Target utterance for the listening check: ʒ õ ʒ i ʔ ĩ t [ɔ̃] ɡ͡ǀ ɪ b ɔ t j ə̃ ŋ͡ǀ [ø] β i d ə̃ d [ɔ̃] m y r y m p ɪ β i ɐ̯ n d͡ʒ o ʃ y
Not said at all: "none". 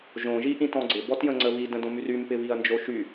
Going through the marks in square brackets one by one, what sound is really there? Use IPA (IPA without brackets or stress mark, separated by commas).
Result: ɔ̃, ə, õ